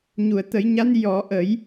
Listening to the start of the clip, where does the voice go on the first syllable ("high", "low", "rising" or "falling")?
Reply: low